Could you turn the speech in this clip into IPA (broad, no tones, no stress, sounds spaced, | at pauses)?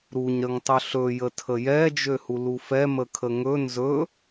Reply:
ɾ u ɲ ɾ ə ŋ tˤ ɵ ɬ ɵ j ə tʰ ə j ɛ d͡ʒ ø h u l u f ɛ m ə kʰ ə ŋ ɵ n z ɵ